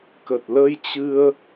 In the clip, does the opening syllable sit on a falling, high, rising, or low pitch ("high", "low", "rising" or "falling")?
low